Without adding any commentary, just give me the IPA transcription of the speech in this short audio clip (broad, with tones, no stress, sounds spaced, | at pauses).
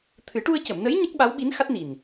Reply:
t̪ʰ ɨ˨˩˦ ʈ u˧ ə̯ c ə˨˩˨ m n ə˧˥ j ɲ ə˦˥ k̚ ɓ a˧˥ w ɓ i˧˥ n x a˦˥ t̚ n i˨˩ n